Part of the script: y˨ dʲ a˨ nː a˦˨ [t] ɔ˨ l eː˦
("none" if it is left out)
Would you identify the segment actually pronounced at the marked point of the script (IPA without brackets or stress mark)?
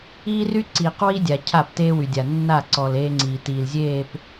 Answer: ǀ